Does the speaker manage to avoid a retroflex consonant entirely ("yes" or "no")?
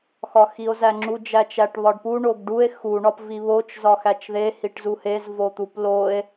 no